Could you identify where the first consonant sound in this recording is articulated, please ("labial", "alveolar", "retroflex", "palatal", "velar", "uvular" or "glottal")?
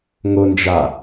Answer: velar